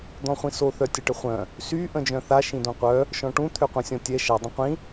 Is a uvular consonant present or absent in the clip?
present